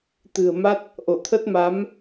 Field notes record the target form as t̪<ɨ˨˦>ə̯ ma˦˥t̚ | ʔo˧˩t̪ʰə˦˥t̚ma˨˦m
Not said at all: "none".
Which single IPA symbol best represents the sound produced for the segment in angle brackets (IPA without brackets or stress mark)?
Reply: ɨ̤˨˩